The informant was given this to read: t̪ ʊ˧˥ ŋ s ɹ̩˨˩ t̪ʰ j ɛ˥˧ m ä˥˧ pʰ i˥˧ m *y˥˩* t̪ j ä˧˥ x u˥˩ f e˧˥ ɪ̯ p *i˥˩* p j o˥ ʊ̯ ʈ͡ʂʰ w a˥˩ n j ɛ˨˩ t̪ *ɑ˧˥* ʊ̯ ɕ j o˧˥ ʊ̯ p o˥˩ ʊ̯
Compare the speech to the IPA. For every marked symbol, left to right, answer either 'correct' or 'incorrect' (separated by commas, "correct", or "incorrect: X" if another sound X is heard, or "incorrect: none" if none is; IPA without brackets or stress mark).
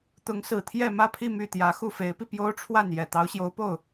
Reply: correct, incorrect: i˧, correct